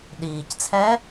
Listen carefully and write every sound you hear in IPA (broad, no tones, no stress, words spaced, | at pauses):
ɗiːct͡sʰɛː